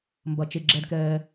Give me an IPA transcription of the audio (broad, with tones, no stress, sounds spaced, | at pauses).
m b ɐ˩ t͡ʃ e˩ ɡ͡ǁ ɛ˩ d k ɛː˩